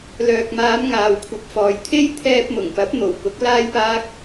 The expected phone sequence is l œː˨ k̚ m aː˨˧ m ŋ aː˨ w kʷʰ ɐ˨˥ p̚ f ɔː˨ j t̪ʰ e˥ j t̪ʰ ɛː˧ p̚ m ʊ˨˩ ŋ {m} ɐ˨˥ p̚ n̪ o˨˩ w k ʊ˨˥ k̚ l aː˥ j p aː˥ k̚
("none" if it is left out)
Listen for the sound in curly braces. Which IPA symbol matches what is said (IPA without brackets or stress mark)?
p